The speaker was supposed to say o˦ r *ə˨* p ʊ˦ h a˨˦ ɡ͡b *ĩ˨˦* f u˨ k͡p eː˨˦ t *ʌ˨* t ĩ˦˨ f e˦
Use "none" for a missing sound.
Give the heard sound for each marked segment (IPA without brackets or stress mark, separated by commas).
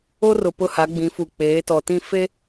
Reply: ʊ˨, ĩ˨˦, ɔ˨